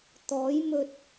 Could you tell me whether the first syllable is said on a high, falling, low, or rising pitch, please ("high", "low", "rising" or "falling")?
rising